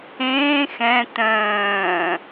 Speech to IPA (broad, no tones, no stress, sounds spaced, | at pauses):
ẽː x ɛ̃ t œ̃ː